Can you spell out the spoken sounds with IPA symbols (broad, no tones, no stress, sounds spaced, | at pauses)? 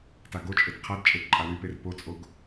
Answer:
t a ɡ o t͡ʃʼ e t qʰ a d t͡ʃʼ e t ǃʼ a w y p e r p o t͡sʼ o ɡ